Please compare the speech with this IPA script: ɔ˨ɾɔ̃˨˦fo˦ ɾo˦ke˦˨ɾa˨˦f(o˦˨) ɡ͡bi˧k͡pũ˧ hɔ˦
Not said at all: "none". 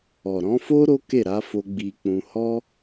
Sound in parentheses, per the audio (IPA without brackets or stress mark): o˧